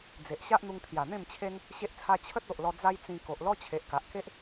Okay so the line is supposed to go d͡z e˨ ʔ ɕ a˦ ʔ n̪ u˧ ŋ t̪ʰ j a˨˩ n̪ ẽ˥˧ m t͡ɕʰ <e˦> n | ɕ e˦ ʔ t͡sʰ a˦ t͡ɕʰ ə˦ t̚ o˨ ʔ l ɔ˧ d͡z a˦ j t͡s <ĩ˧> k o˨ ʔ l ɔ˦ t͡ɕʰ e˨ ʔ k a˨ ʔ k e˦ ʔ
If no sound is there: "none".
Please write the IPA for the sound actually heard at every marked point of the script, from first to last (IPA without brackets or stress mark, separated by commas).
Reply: e˦, ĩ˧